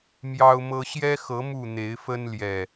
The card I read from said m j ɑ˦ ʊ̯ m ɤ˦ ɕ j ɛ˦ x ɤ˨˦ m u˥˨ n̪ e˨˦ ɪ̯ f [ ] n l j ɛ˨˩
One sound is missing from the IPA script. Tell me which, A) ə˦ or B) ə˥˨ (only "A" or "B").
A